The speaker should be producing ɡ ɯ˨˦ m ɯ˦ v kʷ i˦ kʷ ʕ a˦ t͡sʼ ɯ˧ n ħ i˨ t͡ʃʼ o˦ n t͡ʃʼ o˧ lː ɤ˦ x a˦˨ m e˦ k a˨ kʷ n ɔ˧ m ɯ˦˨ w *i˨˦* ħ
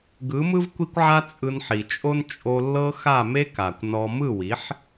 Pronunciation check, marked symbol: correct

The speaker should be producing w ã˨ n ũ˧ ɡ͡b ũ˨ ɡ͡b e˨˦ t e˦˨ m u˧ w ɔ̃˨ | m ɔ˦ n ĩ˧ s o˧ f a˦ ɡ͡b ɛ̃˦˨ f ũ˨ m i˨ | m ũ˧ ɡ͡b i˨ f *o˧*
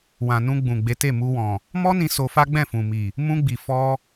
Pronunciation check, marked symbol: incorrect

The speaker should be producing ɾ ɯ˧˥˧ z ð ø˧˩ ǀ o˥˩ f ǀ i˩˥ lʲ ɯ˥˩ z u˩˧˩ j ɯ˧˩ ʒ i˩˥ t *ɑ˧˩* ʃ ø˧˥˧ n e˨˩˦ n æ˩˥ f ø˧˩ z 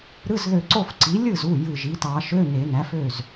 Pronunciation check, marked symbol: incorrect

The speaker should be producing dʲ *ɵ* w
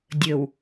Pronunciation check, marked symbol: correct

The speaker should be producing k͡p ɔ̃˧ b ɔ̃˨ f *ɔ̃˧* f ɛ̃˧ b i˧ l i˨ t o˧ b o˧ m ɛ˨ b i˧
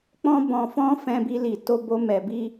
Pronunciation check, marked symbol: correct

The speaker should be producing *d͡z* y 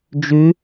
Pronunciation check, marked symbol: incorrect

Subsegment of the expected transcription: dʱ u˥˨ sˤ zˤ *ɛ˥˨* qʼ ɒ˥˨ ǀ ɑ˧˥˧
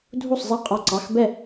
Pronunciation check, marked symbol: correct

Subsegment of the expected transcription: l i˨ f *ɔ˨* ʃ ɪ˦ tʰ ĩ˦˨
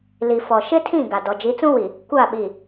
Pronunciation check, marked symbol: correct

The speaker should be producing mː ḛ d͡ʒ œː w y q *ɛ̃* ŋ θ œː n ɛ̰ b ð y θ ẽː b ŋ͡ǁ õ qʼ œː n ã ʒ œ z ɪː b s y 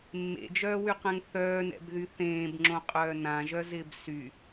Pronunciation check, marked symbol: correct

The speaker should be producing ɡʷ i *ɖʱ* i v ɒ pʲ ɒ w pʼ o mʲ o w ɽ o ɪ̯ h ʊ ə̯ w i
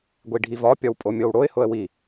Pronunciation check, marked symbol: correct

